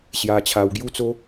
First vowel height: low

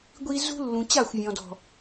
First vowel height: high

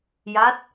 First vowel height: low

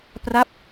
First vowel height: low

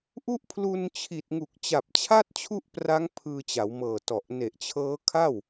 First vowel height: high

